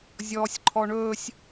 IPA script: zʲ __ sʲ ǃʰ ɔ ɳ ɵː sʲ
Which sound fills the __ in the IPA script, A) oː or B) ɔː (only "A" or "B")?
B